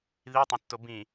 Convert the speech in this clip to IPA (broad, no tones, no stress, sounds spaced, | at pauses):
ð i tˤ ẽ tː o b ĩ